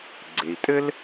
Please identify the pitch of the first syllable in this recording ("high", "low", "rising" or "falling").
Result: low